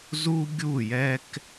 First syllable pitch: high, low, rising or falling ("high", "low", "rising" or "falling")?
high